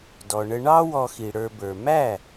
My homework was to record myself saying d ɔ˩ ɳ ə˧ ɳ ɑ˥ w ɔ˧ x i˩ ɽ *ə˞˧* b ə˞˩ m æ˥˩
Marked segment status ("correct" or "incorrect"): correct